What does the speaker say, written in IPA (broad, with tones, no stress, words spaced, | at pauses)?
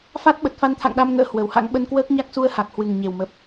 fa˦˥t̚ ɓə˨˩t̚fa˧nt̪ʰa̰˧˨ŋɗa˧m ŋə̰ː˧˥hwə˨˩wha̰˧˥ŋ ɓə˧nkwəː˦˥k̚ɲa˦˥k̚ su˧ə̯ha˨˩k̚hwɨ˨˩ŋɲe˨˩w mə˦˥p̚